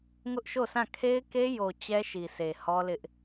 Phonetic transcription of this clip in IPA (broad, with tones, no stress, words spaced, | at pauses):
ŋʊ˦ʔʃo˦˨sã˦˨ kʰe˦ɪ̯ke˦jo˨ t͡ɕɛ˦ʃi˨sʰe˨ hɔ˦lɪ˦ʔ